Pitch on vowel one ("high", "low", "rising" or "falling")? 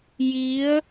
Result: rising